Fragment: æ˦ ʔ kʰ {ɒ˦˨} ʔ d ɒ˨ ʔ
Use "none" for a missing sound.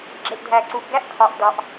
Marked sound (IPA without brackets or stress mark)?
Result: ɒ˨